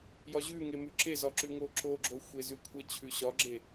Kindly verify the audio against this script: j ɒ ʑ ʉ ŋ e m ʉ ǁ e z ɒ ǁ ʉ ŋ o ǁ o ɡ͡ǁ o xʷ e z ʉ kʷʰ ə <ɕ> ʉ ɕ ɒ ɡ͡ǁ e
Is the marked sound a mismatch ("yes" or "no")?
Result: yes